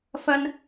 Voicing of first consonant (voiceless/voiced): voiceless